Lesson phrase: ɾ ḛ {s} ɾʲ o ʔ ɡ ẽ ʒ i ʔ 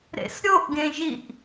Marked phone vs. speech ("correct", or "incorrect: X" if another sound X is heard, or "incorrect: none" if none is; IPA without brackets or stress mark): correct